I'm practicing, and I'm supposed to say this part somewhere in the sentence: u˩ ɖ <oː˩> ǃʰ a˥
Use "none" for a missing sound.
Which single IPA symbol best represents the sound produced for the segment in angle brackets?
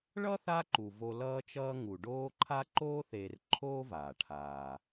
oː˦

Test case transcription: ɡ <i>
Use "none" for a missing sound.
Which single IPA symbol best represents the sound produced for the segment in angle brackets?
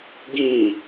ĩ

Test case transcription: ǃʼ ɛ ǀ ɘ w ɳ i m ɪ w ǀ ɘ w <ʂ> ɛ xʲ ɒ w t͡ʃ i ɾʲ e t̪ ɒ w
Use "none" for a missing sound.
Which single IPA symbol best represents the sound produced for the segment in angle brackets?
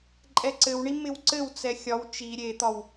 t͡s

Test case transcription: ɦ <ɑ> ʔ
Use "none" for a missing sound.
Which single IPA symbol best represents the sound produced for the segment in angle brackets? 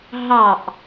ɑ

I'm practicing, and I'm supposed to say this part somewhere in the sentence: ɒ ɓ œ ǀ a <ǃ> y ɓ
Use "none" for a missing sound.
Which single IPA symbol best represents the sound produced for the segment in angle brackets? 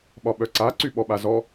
ǀ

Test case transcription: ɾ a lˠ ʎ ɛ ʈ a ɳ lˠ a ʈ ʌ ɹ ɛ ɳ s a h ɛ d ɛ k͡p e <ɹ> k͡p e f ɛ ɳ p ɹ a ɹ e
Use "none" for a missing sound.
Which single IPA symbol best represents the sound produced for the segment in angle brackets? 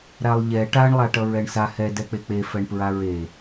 none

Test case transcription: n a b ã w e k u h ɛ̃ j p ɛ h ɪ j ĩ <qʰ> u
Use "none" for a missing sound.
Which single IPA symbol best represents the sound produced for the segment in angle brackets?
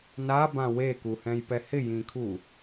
kʰ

